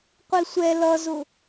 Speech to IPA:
qʷisʷɛ lʌzʊ

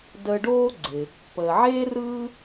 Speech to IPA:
dəː˧ ɖoː˥ɡ͡ǀɪ˩ | pəː˩ʕeː˥ rɯː˥

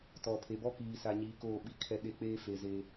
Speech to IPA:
tɔ˨pʰe˨bɔ˦ kiː˨sa˨ɲiː˨ koː˦˨ɓi˦˨kʰɛ˦ɗe˦ k͡peː˦fe˨ze˦

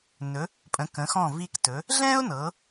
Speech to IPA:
nɵ˩˧ | pʼə̃˩˧kə̃˩˧xɔ̃˧˩ vi˧ktɵ˩˧ | ɮɛ̃˥ʊ̯nɤ˩˧

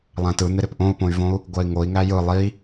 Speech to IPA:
lˠæ̃tɯn̪ɪ ɾɪpʔõu̯põy̯võu̯ | ɡʷɜi̯ŋoi̯ ŋæjɯ lˠi

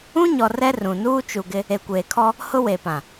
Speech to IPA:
ũ˦ɲɔ˨ rɛ˦rũ˨nuː˦ t͡ʃu˨ɡɪ˦ | e˨kʷeː˨kʰɔ˦ | hʊ˦we˨pã˨

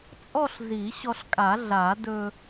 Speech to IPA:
t͡sʼɔ˥˧ɬzi˨˩˦ɕɔ˧ɬkʼa˨˩˦ ɮa˨˩˦dɵ˧

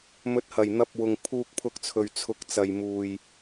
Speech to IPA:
mɵ˨˥t̚hɐ˨˩jn̪ɐ˧p̚wʊ˨ŋ pʰuː˧k̚pʰʊ˧k̚t͡sʰɵ˨ɥ t͡sʰʊ˨˥k̚t͡sɐ˨jmuː˨j

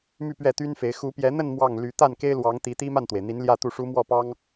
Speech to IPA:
my˥˧pɥɛ˥˩t̪y˥nfe˧˥ɪ̯ xu˧˥pjɛ˧˥ n̪ə˥˧n mwɑ˥˩ŋly˧˥ t̪a˥˩nke˥ɪ̯lwɑ˧˥ŋt̪i˧˥ t̪i˥ma˥˩nt̪we˩ɪ̯n̪i˧˥n ljä˥˧t̪u˥˩ʂu˥ mwɔ˥˩pɑ˥ŋ

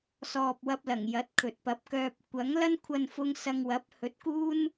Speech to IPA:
sɔː˨p̚wɐ˧p̚ lɐ˨˩ŋjɐ˨˥t̚ kʰɵ˨t̚pɐ˧p̚kœː˧p̚ kʷɐ˨˥ŋlɐ˥n kʷʰɐ˧nfʊ˧ŋ sɐ˧ŋ wɐ˨˥p̚ hɵ˨˥t̚kuː˥n

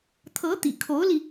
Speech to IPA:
t̪ʰɤ˧˥t̪ḭ˨˩kʰo˧˥ʊ̯li˧

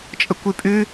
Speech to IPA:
t͡ʃʼəkʷʉpʼʉ

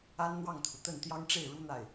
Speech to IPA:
a˥nn̪wɑ˥˩ŋt̪ʰu˩ t̪ə˥˩n t̪jɑ˥ŋʈ͡ʂe˥˩ɪ̯ ɻu˥ n̪a˥˩ɪ̯

